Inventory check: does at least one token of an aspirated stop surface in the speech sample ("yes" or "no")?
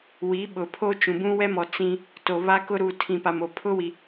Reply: yes